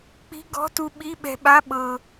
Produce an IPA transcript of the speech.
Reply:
k͡pi̤˧˥˧ɡɔ̤˧˥˧tu˧ ɓi˧˥˧ɓɛ̤˧ɓa˧˥˧ ɓɤ˧

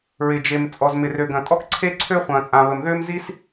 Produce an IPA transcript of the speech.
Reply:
ɹɪ˩d͡ʒe˩m t͡sʼɔ˩zmɪ˩rø˩ɡɐ̃˩ tʼɔ˥kǀʰe˥ ǀʰø˥ χʷɐ̃ː˩t͡sʼã˩ βə˩mðʏː˥mzi˥s

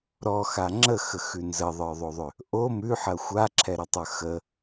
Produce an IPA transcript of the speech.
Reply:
ɾɔxa ŋ͡ǁəxəxʉ nzəðˤə˞ðˤoðˤʏ | ʔo mʉħɐ xʷaǁʰɛɾətˤə˞ xə

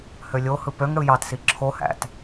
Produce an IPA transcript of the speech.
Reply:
hølʲohɯ pøŋɽɯ jɑtsi ǁʰohæ̰t

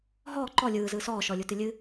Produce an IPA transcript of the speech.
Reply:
ɦɔː ǃɔ lʲɯːzɯː sɔːʃɔlʲutɨ lʲɨ

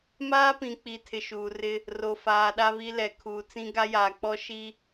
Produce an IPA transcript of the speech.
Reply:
maː˦pĩ˨k͡pi˨ tʰɪ˨ʃuː˨rɪ˦ | ro˨ faː˨ɗa˦βi˦ lɛ˨ kʰuː˨t͡sĩ˦ ɡa˦jaː˨k͡pɔ˦ ʃi˦

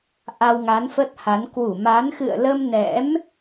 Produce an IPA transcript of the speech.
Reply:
ʔa˧wŋa˨˦nfə˦˥t̚ha˨˦n kwu˧˩ma˨˦n xɨ̰˧˨ə̯lə˧m nɛ̰˧˥m

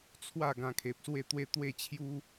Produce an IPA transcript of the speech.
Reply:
t͡sʰwa˥˧ ɡã˧kʰe˨p̚swe˥˧t̪we˦ t̪we˥˧t͡ɕʰju˦

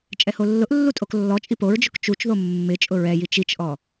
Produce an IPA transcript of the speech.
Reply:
t͡ʃʼɛholːʊʔlːu tʼoklːɔt͡ʃʼi poɹd͡ʒʊk t͡ʃut͡ʃðo mːɪ t͡ʃʼʊɹɛji t͡ʃit͡ʃʔɔ

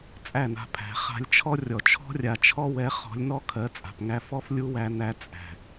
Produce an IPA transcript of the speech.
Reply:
t͡sʼæ˦˨na̤˧pʰæ̤˨˦ χa̤˧lʲt͡ʃʰɔ˦rʲɔ˨ t͡ʃʰɔ̤˧rʲa˨t͡ʃʰɔ˧wɛ˨˦ χɔ̤˨˦lʲnɔ˦ kʰɜ˨˦t͡sʼa̤˨pŋæ˧fɔ˦f lʲu˦wæ˧ næ˧t͡sʼæ̤˨

